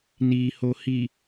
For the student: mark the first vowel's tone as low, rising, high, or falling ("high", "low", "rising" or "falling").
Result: low